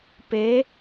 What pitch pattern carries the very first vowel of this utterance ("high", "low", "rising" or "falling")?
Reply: rising